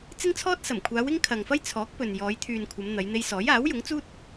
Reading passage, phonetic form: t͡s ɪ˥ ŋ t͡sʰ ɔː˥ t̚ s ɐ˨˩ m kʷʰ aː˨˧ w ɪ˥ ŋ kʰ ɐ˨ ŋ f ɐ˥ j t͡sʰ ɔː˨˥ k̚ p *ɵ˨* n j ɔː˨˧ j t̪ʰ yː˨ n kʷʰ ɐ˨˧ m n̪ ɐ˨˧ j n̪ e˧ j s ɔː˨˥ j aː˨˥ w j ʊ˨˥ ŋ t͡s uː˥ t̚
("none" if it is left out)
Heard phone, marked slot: ɵ˨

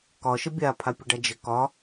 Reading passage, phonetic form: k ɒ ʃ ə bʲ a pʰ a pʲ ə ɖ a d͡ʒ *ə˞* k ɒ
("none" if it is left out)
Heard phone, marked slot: ə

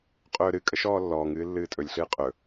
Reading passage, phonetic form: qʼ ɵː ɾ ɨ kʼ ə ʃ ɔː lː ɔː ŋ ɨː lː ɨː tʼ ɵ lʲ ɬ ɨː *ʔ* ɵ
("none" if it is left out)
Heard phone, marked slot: qʼ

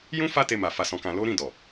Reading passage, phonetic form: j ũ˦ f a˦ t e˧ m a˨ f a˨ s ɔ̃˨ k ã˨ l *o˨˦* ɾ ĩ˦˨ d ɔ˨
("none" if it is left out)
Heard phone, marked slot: o˨˦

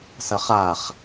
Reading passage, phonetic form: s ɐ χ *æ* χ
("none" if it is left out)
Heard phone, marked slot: a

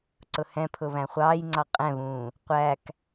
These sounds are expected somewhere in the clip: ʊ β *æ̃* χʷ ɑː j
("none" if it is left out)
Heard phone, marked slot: æ̃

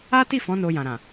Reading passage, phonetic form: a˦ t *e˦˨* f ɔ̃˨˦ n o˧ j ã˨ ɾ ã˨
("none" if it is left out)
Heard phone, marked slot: i˦˨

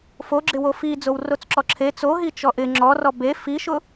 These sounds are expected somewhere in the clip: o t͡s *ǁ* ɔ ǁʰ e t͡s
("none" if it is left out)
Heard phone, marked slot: ǁ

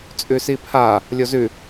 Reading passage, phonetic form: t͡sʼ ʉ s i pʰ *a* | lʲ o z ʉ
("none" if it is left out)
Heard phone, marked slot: a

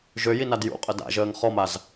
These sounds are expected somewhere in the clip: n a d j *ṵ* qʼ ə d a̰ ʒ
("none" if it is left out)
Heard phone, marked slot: ṵ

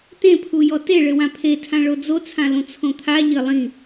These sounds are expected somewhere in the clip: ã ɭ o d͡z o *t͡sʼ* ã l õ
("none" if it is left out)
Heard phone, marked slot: t͡sʰ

